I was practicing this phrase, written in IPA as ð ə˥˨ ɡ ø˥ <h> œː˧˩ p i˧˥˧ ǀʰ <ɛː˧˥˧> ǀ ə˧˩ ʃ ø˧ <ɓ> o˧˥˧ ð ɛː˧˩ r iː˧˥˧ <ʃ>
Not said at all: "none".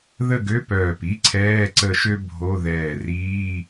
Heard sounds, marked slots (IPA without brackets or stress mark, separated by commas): p, ɛː˧˥˧, bʱ, none